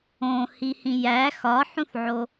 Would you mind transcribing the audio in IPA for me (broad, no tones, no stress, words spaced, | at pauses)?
õ hihĩjæ xɒħũθʕo